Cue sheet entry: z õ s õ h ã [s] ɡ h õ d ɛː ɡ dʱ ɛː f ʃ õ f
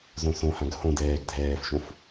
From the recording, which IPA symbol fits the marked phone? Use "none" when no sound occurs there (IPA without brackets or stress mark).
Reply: none